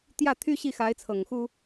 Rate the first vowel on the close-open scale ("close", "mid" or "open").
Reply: open